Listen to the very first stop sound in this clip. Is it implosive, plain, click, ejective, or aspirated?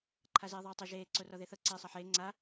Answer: click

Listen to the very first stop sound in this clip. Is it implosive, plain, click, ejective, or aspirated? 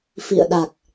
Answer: implosive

